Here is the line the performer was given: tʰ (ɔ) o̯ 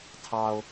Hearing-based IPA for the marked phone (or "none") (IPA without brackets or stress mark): ɑ